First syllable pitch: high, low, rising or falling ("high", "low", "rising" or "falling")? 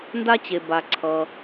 high